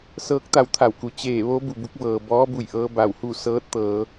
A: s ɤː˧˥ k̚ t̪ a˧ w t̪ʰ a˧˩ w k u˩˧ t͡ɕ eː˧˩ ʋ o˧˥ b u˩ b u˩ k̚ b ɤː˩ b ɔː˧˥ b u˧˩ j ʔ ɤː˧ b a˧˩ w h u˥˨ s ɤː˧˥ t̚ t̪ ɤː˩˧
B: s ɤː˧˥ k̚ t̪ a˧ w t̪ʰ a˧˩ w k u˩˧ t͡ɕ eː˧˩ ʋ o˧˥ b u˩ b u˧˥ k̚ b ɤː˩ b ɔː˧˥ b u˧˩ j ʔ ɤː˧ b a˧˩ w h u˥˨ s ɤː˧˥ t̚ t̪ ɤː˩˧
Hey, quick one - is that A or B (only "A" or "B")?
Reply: B